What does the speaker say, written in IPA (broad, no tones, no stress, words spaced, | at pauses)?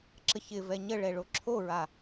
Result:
ǁəçɪvɛ ɲəɭɛ ɭoǁʰoɹa